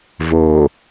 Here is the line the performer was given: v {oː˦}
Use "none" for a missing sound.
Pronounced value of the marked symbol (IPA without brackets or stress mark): oː˨